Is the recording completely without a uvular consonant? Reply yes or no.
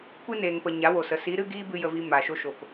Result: yes